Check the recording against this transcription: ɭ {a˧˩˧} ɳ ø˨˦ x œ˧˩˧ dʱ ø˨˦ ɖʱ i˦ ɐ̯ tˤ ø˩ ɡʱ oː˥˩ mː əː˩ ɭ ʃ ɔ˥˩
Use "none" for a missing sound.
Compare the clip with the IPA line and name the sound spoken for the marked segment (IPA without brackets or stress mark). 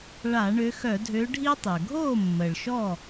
a˧˩˧